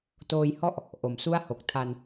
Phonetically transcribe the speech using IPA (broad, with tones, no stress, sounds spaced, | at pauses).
t oː˧ j h ɔ˥˩ ʔ | ʔ o˩˦ m s u˥˩ a̯ h o˨˩ k̚ tʰ a˧ n